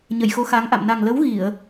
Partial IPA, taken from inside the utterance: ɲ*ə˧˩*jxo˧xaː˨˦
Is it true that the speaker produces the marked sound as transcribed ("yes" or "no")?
yes